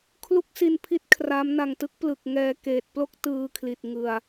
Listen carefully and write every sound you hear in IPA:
kʰ l u˦˥ k̚ s i˧ n pʰ i˦˥ t̚ kʰ r a˦˥ m n a˨˩ ŋ t ɯ˦˥ k̚ p l ɯ˨˩ k̚ ŋ ɛː˧ k eː˨˩ t̚ p l o˥˩ k̚ t ɯː˧ kʰ l i˨˩ t̚ ŋ ɯ˧ a̯

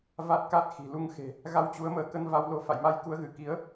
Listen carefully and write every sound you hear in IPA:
v a˦˥ t̚ k a˦˥ t̚ x i̤˨˩ l u˧ ŋ x e̤˨˩ | ɣ a˧ w t͡ɕ u˨˦ ə̯ m əː˨˦ k ə˧ n v a˧ w l o˧ f a̰˧˨ j m a˧ j k u˨˦ ə̯ ɣ ɨ˧˩ k i˨˦ ə̯

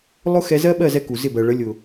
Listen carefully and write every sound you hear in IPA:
lˠ ʊ˦ x ɛ˧ z ɜ˦ ɓ ɜ˦˨ z ɛ˧ k u˨ z ɪ˦˨ b ɜ˨ ɭ ə˨˦ lʲ ʊ˨

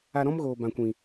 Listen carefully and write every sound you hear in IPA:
a˧ ɾ ɔ̃˦ m ɣ oː˨ b ã˨ kʷ ĩ˨

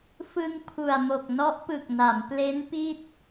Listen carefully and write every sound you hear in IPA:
f ɯ˧ ŋ pʰ u˨˩ a̯ m o˨˩ k̚ n ɔ˦˥ ʔ p ɯ˨˩ k̚ n a˩˦ m p l e˦˥ n p i˥˩ t̚

